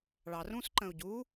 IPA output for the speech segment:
ɭ ɑ r ũ s ǃ ə̃ u̯ ɟ u

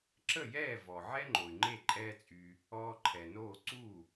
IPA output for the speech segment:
ǁ ə˥˩ j ɛː˥˩ v ɔ˩ ʕ ɛ˥ ŋ͡ǃ o˩ y̯ ŋ͡ǃ e˥˩ ǃʼ ɛː˥ t͡sʼ y˧ | ɔː˧ ǃʰ ɛ˩ n oː˥˩ ǀ u˥˩

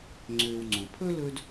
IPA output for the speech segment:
ŋ͡ǀ øː˨ w ŋ͡ǀ õ˩ pʰ ɵ˥ l ɵ˦ d

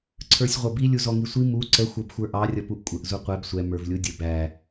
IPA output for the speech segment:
ǀʰ ə˞ sʲ ʁʷ ʌ b i lʲ u z ɔ ŋ i sʷ i m u ǀ ə xʷ ə˞ b xʷ ə˞ ʔ ɑ rʲ ʌ p u ʔ kʷʼ ə ʔ z u qʷ ɛ b sʷ ɛ m ə˞ v lʲ u dʲ ə b æ

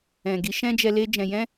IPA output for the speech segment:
ɛ̃˨ ɡ i˨˦ ʃ ɛ̃˦ d͡ʒ ɛ˧ l e˦ d͡ʒ ɛ̃˧ j ɛ̃˦

